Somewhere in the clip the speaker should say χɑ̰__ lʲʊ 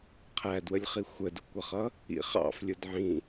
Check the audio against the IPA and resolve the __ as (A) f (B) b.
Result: A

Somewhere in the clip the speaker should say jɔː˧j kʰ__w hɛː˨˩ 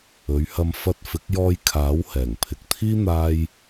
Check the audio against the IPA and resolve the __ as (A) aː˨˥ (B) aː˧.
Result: A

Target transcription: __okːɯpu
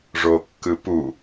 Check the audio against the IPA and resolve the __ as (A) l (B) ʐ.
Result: B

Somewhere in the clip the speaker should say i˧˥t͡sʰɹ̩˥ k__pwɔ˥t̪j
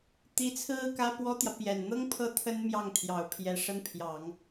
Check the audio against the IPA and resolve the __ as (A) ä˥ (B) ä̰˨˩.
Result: A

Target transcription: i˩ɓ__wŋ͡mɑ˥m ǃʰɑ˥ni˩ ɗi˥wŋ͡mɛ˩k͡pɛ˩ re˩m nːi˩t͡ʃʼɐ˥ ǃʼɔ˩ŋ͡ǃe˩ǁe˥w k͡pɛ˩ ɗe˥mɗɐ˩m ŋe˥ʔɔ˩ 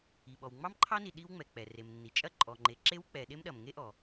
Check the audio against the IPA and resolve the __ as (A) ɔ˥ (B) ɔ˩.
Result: B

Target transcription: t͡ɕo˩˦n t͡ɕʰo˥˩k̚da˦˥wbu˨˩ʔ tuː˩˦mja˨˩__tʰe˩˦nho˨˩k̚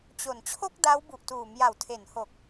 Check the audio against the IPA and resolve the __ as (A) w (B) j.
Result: A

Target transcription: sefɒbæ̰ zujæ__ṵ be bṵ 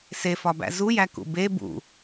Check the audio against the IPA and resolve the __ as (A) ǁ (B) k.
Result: B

